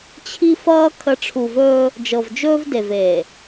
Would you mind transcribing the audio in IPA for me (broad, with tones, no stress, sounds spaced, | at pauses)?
t͡ɕʰ i˦ f ʌː˦ kʰ ə˨˦ ʈ͡ʂʰ u˨ v ɵː˦ | d͡ʒ ɤ˨ v d͡ʒ ɵː˦ v d e˨ v eː˨